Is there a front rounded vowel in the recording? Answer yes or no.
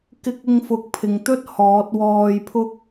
no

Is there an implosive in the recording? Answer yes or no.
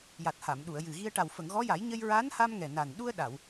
yes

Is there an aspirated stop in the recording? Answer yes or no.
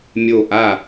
no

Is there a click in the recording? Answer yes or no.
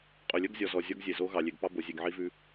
no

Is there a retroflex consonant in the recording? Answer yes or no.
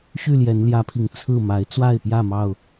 no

